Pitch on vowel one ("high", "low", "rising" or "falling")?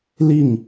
falling